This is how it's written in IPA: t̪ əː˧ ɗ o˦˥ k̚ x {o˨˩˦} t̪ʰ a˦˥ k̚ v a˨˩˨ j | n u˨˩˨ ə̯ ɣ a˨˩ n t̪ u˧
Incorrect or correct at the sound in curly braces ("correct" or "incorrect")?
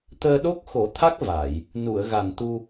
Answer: correct